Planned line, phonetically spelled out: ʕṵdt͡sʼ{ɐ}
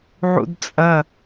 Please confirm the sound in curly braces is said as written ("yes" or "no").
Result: yes